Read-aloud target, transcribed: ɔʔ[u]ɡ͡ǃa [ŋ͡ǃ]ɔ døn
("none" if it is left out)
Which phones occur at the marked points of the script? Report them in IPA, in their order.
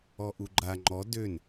u, ŋ͡ǃ

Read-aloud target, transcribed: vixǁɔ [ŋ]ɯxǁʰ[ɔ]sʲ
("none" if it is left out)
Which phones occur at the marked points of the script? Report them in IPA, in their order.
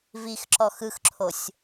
x, o

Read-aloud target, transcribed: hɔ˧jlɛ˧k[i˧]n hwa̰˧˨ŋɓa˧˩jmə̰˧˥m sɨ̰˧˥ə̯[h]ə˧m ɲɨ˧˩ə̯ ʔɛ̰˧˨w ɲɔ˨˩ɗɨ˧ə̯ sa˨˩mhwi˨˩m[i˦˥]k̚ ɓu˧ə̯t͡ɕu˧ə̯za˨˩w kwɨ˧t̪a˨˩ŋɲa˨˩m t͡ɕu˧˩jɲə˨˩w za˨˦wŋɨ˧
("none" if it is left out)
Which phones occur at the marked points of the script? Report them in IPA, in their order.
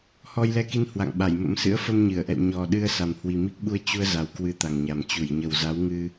i˧, f, i˦˥

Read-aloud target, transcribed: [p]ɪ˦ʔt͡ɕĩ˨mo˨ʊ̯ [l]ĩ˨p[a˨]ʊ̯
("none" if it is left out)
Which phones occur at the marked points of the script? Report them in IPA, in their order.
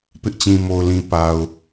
p, l, a˨

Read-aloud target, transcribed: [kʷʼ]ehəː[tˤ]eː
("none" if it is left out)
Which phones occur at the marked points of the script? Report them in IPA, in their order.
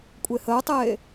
kʷʼ, tˤ

